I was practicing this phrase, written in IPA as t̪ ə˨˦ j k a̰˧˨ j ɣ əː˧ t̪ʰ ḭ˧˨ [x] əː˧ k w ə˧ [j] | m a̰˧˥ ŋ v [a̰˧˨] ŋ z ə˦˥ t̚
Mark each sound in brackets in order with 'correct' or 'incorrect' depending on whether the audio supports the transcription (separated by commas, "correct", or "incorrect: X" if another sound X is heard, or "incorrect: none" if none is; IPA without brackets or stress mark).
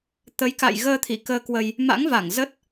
incorrect: k, correct, incorrect: a˧˩